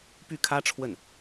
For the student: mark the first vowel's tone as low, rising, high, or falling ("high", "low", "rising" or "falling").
falling